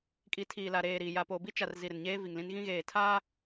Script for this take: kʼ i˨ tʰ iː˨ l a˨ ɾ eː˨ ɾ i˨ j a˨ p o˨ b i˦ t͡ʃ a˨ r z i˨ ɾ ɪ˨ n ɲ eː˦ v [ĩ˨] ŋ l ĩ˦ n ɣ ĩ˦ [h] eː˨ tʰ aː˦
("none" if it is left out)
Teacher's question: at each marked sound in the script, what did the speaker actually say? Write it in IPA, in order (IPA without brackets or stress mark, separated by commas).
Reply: i˨, ɣ